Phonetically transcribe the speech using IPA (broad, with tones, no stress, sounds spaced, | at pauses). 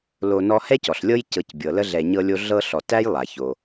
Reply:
l o˨ n ɔ˦ h ɛ˥ c ɔ˩ ɬ lʲ ɤ˦ j c ɤ˨ c bʲ ɤ˩ l ə˦ ɮ ɛ˨ ɲ ɤ˦ lʲ o˦ ɮ ɤ˥ ɬ ɔ˨ t æ˥ j lˠ a˩ ç o˩